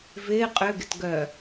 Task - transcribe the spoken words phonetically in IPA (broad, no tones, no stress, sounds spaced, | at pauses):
v ɪː qʼ ʏ ɡ ɪ t ɡ œ